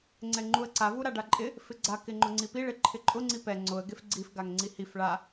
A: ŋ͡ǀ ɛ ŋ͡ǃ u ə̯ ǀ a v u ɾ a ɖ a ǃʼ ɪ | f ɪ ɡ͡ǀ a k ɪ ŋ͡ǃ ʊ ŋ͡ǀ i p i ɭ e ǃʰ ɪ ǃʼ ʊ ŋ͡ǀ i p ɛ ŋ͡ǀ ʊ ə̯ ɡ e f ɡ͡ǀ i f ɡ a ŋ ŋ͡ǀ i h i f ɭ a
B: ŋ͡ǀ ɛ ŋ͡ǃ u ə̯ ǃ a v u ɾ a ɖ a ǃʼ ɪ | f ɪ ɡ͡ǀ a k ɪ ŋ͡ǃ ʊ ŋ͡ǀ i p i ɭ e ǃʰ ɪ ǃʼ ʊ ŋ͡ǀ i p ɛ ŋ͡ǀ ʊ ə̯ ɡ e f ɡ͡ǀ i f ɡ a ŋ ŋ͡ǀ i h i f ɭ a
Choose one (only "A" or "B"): A